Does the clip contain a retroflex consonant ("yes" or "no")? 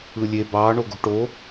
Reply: yes